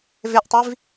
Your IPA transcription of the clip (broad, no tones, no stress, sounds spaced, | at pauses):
v e ʔ tˤ i v